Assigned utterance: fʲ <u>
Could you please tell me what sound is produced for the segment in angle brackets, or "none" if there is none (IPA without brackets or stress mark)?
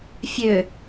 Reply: ø